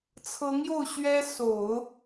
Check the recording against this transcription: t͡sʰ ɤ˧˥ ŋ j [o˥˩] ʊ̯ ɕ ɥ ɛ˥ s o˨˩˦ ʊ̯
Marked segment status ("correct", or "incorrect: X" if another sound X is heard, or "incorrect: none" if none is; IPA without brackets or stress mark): correct